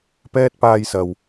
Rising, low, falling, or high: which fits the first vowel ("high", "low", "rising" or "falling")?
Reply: high